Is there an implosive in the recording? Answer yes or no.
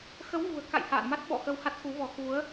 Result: yes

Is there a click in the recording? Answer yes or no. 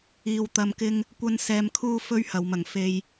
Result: no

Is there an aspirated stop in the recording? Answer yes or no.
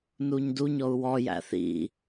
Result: no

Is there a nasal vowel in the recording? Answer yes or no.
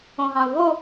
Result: yes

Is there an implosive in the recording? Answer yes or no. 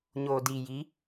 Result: no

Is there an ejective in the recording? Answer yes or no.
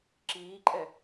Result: yes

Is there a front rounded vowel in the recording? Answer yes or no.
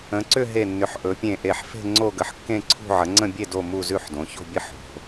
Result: yes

